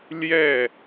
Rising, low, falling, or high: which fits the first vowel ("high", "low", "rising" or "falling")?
falling